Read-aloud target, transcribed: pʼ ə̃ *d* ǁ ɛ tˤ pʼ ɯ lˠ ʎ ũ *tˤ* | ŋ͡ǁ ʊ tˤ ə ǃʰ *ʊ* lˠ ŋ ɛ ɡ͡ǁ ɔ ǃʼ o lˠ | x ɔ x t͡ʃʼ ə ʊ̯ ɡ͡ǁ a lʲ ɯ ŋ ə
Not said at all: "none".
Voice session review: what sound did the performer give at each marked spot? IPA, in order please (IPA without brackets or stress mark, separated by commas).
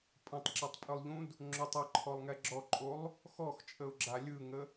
tˤ, d, ɔ